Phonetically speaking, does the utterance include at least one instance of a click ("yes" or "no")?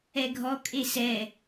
no